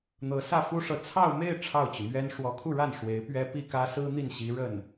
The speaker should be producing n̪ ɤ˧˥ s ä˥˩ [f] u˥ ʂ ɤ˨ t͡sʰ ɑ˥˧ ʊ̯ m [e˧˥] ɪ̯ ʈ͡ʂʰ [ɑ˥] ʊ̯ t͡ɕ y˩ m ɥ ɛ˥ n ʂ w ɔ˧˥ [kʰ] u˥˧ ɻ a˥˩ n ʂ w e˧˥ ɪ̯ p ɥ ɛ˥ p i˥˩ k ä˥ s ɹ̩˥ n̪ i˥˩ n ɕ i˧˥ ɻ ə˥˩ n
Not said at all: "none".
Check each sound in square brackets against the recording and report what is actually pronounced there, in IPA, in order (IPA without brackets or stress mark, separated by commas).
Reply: f, e˥˧, ɑ˥˩, kʰ